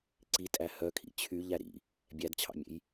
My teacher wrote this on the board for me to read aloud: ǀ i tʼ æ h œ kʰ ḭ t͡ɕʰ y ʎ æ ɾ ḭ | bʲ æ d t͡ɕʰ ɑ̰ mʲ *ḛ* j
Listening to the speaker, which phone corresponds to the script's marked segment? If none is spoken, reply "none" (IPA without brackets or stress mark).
ḛ